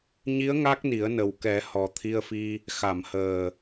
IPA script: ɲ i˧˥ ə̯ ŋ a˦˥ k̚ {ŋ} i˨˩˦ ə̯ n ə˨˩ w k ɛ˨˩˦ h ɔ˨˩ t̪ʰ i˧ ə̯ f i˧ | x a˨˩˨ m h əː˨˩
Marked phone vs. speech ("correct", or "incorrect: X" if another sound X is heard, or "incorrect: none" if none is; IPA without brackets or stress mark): incorrect: n